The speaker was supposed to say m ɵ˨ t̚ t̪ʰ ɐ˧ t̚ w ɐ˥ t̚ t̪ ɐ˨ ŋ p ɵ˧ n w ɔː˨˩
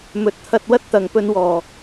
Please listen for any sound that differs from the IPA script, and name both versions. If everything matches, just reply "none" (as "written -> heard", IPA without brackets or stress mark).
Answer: none